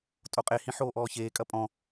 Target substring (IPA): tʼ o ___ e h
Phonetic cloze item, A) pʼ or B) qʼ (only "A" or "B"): B